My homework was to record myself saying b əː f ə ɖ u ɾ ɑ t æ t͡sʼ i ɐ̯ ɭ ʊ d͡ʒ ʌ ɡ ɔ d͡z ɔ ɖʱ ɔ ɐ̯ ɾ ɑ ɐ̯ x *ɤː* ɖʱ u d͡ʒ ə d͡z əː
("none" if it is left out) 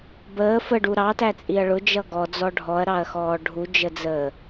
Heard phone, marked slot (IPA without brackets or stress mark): ɔː